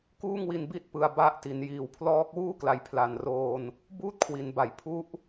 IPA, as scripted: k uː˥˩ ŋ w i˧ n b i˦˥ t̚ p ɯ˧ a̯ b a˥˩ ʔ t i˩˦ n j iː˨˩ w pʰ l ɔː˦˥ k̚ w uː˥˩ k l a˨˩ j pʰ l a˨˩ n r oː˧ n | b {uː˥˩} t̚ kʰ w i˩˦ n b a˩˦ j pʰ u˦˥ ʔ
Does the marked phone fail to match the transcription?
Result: no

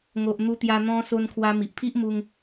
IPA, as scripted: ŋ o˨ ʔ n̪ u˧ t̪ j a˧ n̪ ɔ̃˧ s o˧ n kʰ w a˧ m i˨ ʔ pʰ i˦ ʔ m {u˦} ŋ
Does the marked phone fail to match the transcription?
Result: no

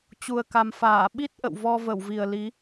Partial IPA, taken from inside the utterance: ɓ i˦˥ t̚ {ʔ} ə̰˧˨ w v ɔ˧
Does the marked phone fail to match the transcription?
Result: no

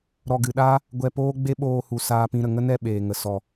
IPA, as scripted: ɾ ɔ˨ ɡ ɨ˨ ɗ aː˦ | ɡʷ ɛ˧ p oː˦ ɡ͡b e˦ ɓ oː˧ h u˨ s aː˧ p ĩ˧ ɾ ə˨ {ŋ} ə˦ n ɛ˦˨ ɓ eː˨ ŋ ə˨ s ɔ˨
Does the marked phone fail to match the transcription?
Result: no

